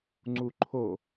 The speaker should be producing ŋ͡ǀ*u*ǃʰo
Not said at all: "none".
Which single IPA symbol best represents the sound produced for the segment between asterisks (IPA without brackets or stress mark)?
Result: u